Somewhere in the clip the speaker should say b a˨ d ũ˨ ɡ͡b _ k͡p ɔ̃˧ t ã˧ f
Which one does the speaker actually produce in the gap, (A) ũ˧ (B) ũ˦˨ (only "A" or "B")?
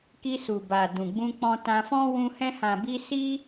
A